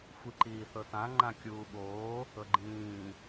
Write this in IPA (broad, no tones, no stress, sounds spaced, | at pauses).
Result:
xʷ i ǃ iː θ ɤ t ã ŋ͡ǃ ã kʲ uː ɓ oː | ɤ ɡ͡ǃ ĩː